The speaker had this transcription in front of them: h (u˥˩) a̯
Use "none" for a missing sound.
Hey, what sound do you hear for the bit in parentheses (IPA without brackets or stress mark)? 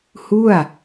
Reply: u˥˩